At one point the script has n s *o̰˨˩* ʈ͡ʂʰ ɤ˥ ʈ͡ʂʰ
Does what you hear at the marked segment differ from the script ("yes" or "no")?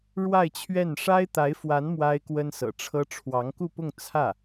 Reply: yes